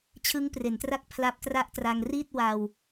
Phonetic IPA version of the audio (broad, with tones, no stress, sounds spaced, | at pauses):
t͡ɕʰ ɯ˦˥ ŋ p r e˩˦ n t r a˥˩ k̚ pʰ l a˦˥ p̚ t r a˥˩ ʔ t r a˧ ŋ r i˥˩ t̚ w a˧ w